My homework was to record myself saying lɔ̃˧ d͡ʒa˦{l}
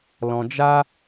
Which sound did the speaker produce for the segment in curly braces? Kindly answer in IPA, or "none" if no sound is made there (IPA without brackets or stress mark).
none